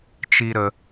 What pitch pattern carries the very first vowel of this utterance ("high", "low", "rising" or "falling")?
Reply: low